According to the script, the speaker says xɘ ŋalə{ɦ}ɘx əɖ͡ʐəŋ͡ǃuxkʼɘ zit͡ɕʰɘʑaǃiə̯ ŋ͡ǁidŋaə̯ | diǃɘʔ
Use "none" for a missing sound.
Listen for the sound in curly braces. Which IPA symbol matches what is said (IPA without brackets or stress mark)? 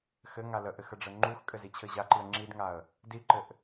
ʔ